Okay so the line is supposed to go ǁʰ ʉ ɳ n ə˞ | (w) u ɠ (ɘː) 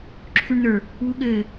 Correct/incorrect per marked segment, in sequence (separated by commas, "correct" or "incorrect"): correct, correct